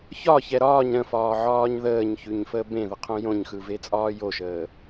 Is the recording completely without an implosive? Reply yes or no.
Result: yes